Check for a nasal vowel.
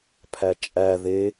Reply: absent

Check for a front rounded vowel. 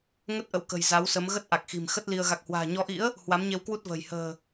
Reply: absent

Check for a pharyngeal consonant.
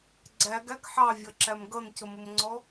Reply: present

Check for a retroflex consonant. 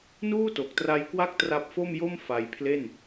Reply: absent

